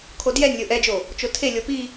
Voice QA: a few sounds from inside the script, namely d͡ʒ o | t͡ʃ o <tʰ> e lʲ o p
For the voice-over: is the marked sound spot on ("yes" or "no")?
yes